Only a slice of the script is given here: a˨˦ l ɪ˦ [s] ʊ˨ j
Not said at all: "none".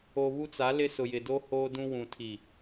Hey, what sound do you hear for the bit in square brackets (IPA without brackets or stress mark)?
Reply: s